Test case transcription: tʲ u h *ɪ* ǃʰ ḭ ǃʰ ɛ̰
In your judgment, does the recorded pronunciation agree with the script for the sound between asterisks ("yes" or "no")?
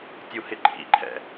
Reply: yes